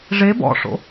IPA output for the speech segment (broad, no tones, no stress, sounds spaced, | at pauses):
ʐ e b ɔ̰ ʂ o̰